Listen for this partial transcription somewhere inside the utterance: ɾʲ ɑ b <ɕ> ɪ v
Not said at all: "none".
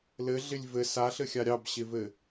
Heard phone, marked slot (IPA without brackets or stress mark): ɕ